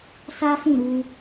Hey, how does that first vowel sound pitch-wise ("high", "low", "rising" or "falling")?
high